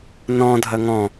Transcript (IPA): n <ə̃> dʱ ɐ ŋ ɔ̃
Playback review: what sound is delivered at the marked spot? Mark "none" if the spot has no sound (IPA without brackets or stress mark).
ɔ̃